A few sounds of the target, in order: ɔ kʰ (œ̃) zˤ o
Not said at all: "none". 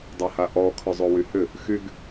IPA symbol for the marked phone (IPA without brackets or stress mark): œ